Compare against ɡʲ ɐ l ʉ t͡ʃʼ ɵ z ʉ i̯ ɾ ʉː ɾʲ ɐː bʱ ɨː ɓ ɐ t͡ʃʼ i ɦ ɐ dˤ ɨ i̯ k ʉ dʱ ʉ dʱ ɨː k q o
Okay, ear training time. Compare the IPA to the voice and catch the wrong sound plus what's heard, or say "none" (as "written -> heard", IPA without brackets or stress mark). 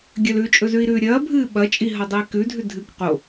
none